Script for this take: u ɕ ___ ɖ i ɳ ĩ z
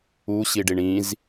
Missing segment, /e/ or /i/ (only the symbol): i